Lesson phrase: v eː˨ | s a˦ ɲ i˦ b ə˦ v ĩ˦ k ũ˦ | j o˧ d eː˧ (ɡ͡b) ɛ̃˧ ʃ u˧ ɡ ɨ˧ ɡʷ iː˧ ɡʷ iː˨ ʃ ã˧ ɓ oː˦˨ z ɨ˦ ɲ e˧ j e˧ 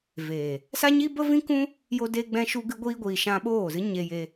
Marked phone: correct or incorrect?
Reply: correct